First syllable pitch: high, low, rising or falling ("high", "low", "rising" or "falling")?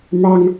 high